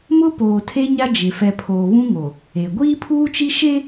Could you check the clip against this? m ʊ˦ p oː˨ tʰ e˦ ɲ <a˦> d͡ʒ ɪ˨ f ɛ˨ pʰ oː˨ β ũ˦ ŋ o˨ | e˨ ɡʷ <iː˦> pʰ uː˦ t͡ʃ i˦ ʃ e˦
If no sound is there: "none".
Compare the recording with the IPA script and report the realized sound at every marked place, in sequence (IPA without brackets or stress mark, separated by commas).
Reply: a˦, iː˦